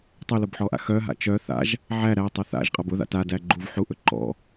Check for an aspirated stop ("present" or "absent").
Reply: absent